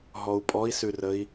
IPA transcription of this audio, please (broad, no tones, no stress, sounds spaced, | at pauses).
ɦ ɔ u̯ pʼ ɔ i̯ s ʉ r ə i̯